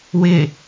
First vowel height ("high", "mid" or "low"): high